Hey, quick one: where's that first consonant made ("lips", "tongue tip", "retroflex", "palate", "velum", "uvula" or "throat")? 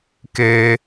velum